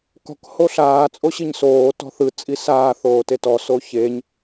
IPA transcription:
kɔ̤k hoɬaː t͡sʼoɕiɲsoː tɔ̤θɯ t͡sʼisaː θoːtetɔ soçeɲ

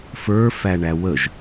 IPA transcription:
fə˞fæɳæ wəʒ

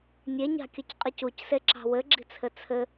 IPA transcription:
nʲeɲɑ̤kʲɵcqʼic ucseǁɑ̤ wɘɡ͡ǁi̤t͡sʰɘ t͡sʰɘ

